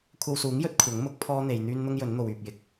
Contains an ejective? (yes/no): no